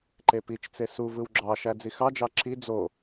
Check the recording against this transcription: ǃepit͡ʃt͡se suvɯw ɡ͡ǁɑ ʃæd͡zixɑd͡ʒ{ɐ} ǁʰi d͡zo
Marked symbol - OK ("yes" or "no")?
no